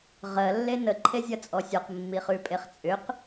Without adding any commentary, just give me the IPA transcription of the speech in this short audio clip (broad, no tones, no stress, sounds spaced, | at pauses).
ʁ ɜ lː e n ə ǃʰ e zʲ ɐ t͡sʼ ɔ sʲ ɔ q mː i χ ʉ pʼ e χ t͡sʼ ʏ q